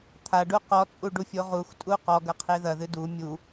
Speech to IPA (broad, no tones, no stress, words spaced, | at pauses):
t̪ʰaɖu qɔt͡sʼuɖufʲo ʁuxtʼu qɔɡɐqʰe ðɐðɨ du mʲu